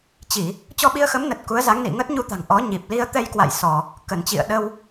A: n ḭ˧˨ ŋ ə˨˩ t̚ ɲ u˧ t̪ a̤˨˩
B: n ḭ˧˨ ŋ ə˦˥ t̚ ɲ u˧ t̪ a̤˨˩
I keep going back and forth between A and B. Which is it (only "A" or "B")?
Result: B